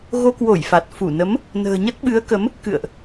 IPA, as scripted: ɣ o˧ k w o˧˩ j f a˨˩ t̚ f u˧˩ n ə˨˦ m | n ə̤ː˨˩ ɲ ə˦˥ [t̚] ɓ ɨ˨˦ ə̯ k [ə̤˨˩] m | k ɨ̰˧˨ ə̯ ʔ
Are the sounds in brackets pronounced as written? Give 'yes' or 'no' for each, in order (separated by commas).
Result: yes, no